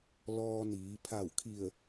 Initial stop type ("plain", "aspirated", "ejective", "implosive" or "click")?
aspirated